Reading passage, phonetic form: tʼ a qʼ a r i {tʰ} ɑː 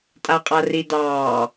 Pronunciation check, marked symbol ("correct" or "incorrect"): incorrect